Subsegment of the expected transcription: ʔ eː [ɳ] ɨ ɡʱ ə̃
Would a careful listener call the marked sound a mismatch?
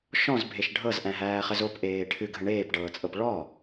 yes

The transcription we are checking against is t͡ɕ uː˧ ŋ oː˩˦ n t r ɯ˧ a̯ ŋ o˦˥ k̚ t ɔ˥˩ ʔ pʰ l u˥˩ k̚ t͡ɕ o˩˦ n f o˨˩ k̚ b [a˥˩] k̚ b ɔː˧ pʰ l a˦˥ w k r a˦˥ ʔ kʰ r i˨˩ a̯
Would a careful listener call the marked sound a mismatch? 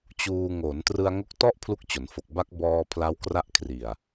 yes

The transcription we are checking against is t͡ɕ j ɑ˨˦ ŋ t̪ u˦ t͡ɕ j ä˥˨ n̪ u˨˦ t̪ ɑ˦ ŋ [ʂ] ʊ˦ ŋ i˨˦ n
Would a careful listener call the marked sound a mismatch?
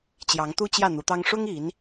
no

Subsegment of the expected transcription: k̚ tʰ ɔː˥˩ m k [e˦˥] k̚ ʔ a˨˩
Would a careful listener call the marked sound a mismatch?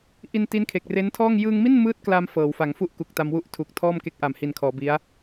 no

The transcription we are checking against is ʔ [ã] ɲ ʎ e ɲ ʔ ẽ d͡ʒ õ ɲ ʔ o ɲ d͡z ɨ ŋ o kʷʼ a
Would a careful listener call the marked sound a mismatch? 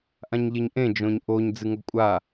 no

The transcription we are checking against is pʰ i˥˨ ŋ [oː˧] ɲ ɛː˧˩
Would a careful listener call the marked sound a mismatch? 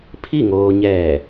no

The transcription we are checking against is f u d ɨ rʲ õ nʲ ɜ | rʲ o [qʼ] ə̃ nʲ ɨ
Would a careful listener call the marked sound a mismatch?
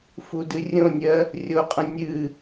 no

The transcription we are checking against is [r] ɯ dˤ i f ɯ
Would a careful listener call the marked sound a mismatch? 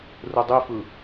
no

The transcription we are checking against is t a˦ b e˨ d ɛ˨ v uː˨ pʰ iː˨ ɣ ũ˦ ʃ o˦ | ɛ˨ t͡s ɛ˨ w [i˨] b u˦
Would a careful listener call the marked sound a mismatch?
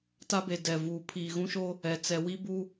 yes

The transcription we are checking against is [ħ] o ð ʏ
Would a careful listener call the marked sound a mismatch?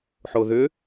no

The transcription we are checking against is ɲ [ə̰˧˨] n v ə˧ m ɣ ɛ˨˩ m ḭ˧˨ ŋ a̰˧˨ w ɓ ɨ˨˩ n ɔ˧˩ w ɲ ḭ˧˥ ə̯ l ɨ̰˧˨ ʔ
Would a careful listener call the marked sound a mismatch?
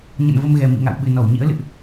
no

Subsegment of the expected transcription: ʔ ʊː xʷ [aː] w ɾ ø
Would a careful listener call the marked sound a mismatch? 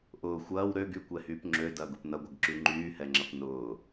yes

